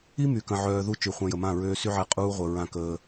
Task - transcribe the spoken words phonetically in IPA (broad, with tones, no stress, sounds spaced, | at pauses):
i˦ m y˨ k ə̃˨ ʕ œː˨ ð u˦ t͡ʃ y˨ χʷ ã˧ j ə˨ m ã˦˨ ɹ øː˧ s y˦ ʕ ɛ˧ qʼ uː˦ ʁʷ ə˨ ɹ ã˧ k əː˧